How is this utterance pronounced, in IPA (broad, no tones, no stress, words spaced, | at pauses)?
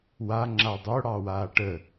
wa ŋ͡ǁadˤo ɽɑwaːʈə